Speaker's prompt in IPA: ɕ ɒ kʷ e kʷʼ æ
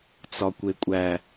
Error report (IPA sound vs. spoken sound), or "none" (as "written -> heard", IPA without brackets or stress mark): ɕ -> t͡s